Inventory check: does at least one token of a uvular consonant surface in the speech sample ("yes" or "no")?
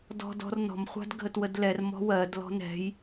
yes